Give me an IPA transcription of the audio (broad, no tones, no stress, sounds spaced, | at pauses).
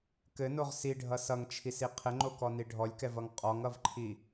k ɘ n o ʁ s i ɖʱ ʌ s ʌ ŋ t͡ʃʰ i s i qʰ ɘ ŋ͡ǃ o k ɔ n i ɖʱ ɔ lʲ k ɛ v ʌ ŋ qʼ ɔ ŋ ʌ v ǃʰ i